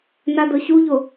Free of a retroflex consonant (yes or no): yes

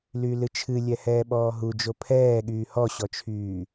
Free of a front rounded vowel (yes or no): no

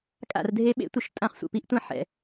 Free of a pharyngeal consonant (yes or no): no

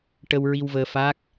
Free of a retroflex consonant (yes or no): no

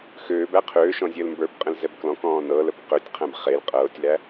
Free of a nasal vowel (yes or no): no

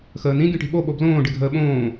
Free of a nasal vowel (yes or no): no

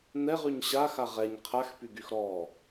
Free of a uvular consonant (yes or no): no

